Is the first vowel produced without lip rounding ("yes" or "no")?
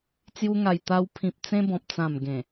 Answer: no